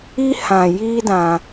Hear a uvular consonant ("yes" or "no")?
no